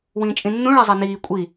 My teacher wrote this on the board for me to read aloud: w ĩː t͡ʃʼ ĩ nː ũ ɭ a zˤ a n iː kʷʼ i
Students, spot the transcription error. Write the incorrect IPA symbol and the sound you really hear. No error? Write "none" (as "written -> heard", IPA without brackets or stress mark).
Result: none